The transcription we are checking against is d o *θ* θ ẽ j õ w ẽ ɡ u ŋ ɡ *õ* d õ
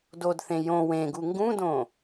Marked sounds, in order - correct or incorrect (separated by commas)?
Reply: incorrect, incorrect